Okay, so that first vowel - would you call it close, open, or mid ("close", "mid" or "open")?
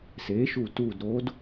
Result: mid